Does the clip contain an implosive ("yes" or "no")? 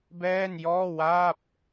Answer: no